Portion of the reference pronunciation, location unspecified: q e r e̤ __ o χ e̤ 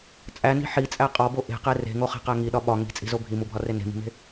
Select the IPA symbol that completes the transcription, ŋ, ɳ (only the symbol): ŋ